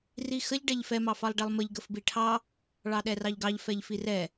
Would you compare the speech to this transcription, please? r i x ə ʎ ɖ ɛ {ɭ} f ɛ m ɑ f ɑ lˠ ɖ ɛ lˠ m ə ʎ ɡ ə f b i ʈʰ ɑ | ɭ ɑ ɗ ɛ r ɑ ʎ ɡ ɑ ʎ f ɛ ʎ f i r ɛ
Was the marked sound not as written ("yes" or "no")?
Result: yes